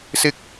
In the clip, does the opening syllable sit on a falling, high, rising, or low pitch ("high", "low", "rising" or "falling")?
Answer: low